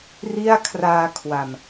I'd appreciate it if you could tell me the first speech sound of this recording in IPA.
r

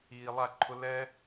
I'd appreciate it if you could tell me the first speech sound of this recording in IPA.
iː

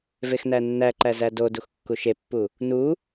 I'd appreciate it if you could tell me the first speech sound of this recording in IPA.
v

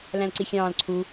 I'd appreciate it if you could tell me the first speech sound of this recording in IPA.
l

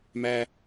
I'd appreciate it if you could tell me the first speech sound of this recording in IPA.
m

